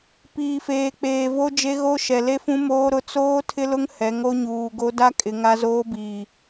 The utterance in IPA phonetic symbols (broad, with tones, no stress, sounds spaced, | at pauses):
p iː˨ f eː˨ k͡p eː˨ v o˦ d͡ʒ e˦ ɣ o˦ ʃ ɛ˨ l e˦ f ũ˦ m oː˦ ɾ ʊ˦ t͡s oː˦ tʰ ɪ˦ l ʊ˦ ŋ h ɛ˨˦ ŋ o˦ ɲ uː˨ ɡ o˦ d a˦ kʼ ɪ˨ ŋ a˦ z oː˦ b iː˨